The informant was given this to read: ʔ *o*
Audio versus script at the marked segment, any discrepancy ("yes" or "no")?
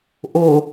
no